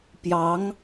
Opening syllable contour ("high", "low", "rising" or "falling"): rising